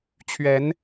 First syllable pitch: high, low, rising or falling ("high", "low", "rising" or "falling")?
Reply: rising